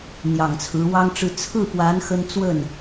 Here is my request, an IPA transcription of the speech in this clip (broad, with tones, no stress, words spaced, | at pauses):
n̪jɑ˨˩ŋt͡sʰɹ̩˧˥wɑ˥ŋʈ͡ʂɻ̩˥˧ t͡sʰɹ̩˥˩pwa˧˥n xə˥n t͡swə˥˩n